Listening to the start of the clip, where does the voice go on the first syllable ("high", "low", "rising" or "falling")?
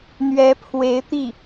rising